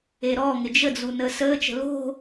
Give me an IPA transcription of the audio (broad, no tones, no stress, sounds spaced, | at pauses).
e ɾ ɔː ŋ ɪ d͡ʒ ə d͡z u n əː s əː t͡ʃ ə̤ l o̤